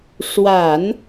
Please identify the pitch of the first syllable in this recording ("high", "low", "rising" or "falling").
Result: low